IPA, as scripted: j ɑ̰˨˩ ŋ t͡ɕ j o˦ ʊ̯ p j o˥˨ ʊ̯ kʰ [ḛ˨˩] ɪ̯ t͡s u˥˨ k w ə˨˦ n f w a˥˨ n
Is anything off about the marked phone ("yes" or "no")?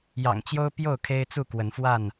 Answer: yes